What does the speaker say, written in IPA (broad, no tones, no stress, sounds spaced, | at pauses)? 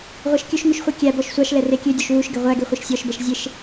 ʁʷ ɛ ʃ kʲ ɵ ʃ ŋ ʉ ʃ χʷ i kʲ æ b ɔ ʃ sʷ ɑ ʃ l ɛ r e kʲ ø dʲ o ʃ w u ʃ ɡ e ʁʷ æ ɡ e χʷ e ʃ sʲ ɔ ʃ b ɛ ʃ zʲ e ʃ